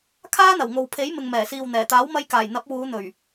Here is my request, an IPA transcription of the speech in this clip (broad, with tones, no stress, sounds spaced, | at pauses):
kʰ aː˥ n̪ ɐ˨˩ w ŋ o˨ w pʰ e˨˥ j m ɪ˨ ŋ m ɛː˨˩ s iː˨ w n̪ ɛː˨˩ t̪ aː˨˥ w m ɐ˧ j k aː˨˩ j n̪ ɐ˨˥ p̚ w uː˨˧ n̪ ɵ˨˩ ɥ